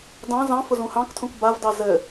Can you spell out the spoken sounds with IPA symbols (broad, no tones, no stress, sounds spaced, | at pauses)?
d ɑ̃ z ɑ̃ f ʊ z ũ h ɑ̃ k tʰ ũ k b a v d ɑ z ɘ